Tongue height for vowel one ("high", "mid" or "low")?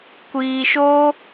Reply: high